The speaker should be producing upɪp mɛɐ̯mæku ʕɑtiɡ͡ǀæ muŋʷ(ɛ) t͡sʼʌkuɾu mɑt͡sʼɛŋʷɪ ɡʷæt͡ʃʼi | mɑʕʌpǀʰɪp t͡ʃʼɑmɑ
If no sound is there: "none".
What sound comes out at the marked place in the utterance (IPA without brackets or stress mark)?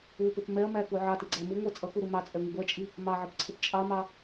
æ